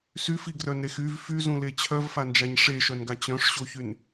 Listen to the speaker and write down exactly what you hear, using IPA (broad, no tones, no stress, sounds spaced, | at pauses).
s y f i ɡ r œ n ɾ e x y v f y z ũ l e t͡ɕʰ œ v f a n d͡ʒ a ɲ ʂ e ʃ œ n ɡ a t͡ɕ œ̃ ʂ ɕ o ç y n